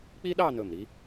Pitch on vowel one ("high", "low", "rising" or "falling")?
high